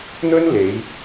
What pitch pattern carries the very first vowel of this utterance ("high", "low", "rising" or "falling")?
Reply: high